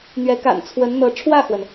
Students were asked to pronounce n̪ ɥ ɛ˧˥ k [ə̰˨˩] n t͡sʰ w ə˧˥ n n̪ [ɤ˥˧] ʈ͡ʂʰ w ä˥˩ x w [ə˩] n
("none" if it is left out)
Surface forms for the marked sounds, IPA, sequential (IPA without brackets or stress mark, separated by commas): a̰˨˩, ɤ˧˥, ə˩